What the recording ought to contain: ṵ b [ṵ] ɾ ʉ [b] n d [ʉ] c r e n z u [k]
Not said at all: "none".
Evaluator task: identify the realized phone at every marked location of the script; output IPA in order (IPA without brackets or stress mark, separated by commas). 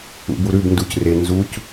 u, b, u, c